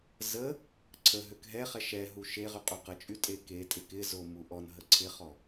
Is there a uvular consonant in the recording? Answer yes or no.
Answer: yes